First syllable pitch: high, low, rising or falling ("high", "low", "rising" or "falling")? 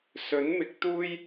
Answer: rising